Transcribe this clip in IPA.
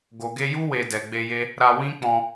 ɡo˨ɡe˧ju˦ we˧dɛ˨ɡ͡be˧je˦ | ɾa˧wĩ˦k͡pɔ̃˧

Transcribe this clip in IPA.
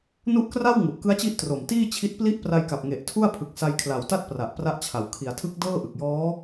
nu˦˥ʔkra˥˩w ŋu˨˩ʔkɯ˦˥a̯t͡ɕi˦˥ʔ tro˨˩mtiː˥˩t͡ɕʰi˦˥t̚ pli˦˥ʔpra˧jka˨˩p̚ ŋe˨˩ʔtʰu˥˩a̯ pʰɯ˨˩k̚sa˧jkʰla˨˩w ta˥˩t̚pra˨˩ʔ pra˦˥ʔt͡ɕʰa˨˩w kʰi˩˦a̯tʰɯ˦˥k̚ dɤː˥˩ʔɯ˨˩k̚jɔː˦˥

